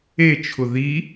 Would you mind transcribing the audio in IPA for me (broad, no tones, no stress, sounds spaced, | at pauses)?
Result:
e t͡ʃʰ ʊ ð i